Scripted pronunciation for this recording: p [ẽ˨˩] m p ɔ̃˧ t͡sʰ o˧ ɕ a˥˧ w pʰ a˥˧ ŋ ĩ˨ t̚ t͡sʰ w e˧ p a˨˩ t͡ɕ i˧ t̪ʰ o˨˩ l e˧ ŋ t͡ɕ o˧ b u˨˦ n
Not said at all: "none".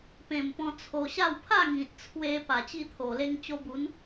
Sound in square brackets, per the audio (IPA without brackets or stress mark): ẽ˨˩